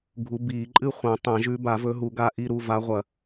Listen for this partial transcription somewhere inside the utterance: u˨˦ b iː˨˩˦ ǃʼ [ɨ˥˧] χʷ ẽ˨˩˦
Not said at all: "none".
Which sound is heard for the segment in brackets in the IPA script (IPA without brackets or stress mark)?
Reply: ɨ˥˧